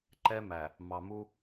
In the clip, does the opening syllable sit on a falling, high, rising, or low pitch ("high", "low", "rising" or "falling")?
high